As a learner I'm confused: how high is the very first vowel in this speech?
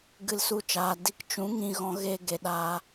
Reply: high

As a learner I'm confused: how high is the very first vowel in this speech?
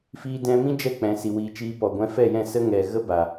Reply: high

